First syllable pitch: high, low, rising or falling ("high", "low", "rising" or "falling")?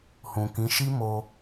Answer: low